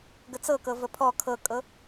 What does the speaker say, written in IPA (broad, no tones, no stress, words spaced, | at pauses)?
ɡət͡sɤkɤ vəpʰɔ kʰɤkʼɤ